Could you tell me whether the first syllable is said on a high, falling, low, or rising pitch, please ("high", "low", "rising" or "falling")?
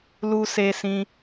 high